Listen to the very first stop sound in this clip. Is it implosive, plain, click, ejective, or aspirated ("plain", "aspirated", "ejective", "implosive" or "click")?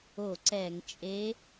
click